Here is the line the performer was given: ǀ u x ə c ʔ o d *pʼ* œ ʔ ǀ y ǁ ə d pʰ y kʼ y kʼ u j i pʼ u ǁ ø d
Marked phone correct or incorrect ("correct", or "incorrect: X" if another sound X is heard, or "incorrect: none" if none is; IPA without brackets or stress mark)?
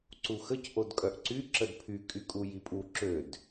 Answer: incorrect: kʼ